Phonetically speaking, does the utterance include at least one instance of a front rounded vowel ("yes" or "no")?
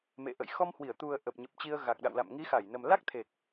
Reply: no